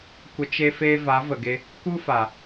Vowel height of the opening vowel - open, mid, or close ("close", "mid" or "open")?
mid